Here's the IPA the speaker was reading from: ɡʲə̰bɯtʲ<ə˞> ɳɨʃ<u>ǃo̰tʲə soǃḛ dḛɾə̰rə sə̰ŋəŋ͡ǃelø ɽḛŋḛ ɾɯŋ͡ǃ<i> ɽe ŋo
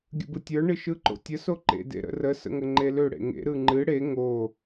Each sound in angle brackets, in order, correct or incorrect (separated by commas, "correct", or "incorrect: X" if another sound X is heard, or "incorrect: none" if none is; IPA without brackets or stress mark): correct, incorrect: ɯ, incorrect: ɨ